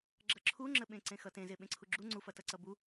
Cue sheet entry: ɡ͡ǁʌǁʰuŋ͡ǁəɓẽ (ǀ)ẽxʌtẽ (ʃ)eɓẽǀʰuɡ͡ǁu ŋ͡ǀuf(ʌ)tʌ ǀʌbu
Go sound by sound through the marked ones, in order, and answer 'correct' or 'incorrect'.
correct, incorrect, correct

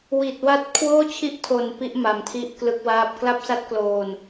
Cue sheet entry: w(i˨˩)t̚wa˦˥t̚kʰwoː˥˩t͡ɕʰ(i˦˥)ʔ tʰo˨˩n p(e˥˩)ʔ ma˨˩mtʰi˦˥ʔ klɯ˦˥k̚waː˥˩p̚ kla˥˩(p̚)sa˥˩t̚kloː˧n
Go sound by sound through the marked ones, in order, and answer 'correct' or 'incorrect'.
correct, correct, incorrect, correct

